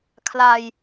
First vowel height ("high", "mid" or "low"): low